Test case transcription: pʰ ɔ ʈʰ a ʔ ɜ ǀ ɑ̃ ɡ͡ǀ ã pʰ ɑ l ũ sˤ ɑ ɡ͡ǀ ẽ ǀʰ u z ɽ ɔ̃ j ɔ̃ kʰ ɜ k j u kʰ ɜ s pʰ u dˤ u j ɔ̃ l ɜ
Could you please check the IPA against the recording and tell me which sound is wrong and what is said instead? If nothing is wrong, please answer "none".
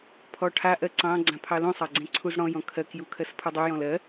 none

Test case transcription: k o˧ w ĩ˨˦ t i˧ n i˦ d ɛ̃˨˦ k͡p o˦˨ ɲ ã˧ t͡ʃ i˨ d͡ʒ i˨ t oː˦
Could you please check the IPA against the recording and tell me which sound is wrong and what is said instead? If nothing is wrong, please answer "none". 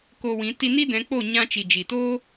none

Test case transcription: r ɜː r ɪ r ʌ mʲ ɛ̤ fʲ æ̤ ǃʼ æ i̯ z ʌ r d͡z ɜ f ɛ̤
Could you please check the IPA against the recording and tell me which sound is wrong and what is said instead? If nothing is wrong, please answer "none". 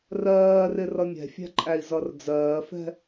ɜ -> ɜː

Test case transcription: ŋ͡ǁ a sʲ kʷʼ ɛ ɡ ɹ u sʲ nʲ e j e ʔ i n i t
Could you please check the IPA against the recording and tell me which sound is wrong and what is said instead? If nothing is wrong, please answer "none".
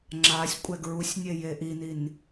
t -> n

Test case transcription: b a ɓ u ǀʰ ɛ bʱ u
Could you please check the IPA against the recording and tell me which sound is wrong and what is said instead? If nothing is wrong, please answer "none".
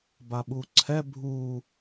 none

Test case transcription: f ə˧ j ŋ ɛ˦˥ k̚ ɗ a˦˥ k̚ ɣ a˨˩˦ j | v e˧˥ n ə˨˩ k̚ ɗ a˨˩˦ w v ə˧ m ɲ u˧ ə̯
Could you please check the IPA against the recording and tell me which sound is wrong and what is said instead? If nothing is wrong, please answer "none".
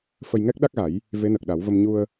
none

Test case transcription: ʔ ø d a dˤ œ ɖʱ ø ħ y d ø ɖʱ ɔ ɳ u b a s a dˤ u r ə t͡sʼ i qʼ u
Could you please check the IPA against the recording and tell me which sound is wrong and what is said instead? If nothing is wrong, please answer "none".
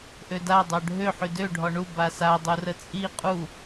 none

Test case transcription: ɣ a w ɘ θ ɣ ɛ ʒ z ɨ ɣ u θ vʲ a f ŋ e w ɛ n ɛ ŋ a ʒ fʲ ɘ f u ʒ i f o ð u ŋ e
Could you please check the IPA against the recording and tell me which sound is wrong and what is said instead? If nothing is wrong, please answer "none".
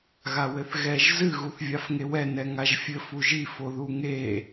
none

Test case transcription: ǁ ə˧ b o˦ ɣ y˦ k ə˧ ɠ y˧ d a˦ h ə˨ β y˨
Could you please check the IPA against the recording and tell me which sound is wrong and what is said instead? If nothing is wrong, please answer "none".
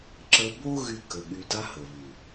none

